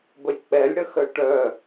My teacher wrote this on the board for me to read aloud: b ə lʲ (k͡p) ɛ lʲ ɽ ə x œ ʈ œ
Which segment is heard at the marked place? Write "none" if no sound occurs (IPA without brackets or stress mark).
k͡p